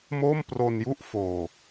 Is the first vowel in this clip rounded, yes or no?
yes